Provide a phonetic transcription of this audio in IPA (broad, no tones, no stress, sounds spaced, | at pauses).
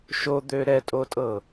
ʃ o d̪ ø ɾ ɛ tʼ o tʼ ɤ